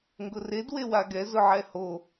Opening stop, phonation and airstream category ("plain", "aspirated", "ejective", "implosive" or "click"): plain